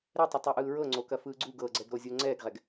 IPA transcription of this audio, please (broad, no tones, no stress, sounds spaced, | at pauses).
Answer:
ɾ ɛ tˤ u tˤ ɤ ʔ ɯː ɹ ɤ ŋ͡ǀ o k ɐ f ɯː ɡ͡ǀ u ɡ ɤ ɡ͡ǀ ɛ ɡ ɾ o zʲ o ŋ͡ǀ ɛː ɡ ʁ ɛ ɡ